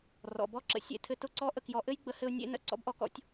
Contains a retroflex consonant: no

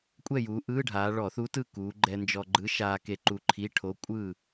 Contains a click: yes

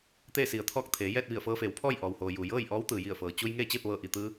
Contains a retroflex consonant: no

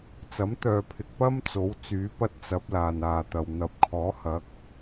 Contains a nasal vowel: no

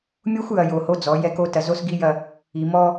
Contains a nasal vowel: no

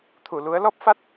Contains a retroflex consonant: no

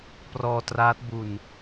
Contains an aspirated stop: no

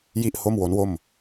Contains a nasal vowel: no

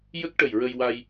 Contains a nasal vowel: no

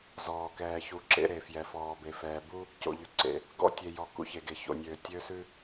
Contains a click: yes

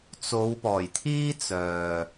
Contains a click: no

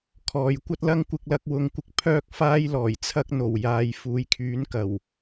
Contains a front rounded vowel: yes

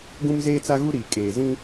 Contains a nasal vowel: yes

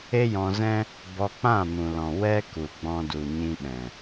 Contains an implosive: yes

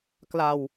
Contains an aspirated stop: no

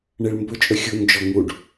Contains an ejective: yes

